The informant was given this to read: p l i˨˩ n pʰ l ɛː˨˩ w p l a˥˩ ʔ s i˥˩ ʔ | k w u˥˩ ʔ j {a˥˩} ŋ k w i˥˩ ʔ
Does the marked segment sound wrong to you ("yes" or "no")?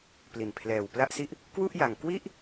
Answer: yes